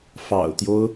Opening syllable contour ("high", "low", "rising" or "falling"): low